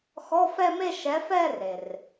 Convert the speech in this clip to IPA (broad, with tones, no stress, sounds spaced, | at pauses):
x ɔ˧˥˧ f ɛ˥˧ m e˥˧ ʃ ɛ˨˥ f ɛ˥˧ r e˩ r